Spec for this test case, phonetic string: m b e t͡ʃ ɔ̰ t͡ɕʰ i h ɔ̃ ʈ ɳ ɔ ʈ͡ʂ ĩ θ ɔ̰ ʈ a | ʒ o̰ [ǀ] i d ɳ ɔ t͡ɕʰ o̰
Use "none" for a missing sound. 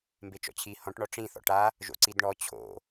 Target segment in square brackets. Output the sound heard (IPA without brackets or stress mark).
ǀ